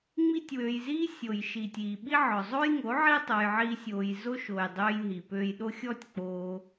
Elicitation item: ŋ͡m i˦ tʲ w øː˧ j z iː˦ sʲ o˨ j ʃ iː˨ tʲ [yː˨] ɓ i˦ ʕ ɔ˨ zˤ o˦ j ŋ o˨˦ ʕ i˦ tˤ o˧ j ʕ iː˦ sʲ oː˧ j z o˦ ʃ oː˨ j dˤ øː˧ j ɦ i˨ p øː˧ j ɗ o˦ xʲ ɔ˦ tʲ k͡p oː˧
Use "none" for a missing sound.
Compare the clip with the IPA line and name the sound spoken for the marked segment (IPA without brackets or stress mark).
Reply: iː˨